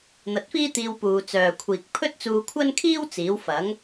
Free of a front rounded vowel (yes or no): no